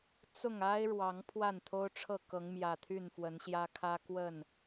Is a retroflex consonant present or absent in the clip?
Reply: present